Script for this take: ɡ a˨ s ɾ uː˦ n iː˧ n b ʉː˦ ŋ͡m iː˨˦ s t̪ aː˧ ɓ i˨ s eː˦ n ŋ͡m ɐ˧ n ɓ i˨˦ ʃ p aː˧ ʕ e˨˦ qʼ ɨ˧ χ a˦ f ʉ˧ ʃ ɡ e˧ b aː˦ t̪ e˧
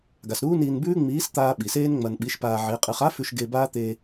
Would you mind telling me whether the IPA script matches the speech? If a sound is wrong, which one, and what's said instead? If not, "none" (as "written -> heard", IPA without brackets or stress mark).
none